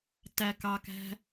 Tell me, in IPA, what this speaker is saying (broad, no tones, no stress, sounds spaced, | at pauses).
t æ k ɑ k æ̤